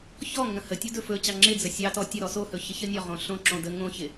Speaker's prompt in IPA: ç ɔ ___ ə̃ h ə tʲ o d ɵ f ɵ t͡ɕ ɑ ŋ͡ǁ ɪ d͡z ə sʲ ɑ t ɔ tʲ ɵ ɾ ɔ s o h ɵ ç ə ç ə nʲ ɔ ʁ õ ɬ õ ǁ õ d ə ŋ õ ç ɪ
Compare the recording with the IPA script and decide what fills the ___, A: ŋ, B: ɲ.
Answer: A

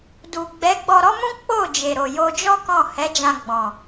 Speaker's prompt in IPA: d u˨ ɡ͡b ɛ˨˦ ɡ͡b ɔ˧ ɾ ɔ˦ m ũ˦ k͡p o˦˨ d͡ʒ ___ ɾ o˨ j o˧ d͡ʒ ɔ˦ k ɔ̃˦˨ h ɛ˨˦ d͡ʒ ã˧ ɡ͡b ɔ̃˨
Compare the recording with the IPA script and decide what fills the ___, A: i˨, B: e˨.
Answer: B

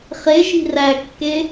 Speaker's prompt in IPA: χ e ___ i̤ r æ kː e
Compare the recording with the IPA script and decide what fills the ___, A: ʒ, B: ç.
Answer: A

